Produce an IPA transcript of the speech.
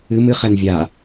ɨ m ɨ χ ɛ n vʲ a

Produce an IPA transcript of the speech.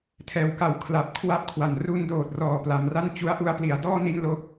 tʰ ɛː˩˦ w k a˨˩ w kʰ l a˨˩ p̚ kʰ w a˥˩ p̚ kʰ w a˩˦ n r u˧ n d oː˨˩ t̚ r ɔː˨˩ p l a˩˦ m r a˥˩ n t͡ɕ u˦˥ a̯ ʔ u˧ a̯ p l i˩˦ a̯ d ɔː˥˩ n i˥˩ n l o˥˩ k̚

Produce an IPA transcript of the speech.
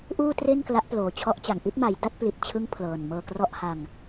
ʔ uː˥˩ t r e˥˩ n k l a˦˥ ʔ p l oː˨˩ t͡ɕʰ ɔ˦˥ ʔ t͡ɕ a˨˩ ŋ ʔ i˥˩ t̚ m a˩˦ j d a˥˩ t̚ p l i˨˩ t̚ t͡ɕʰ ɯ˦˥ ŋ pʰ l ɤː˨˩ n m ɤː˧ k r ɔ˥˩ ʔ h a˧ ŋ

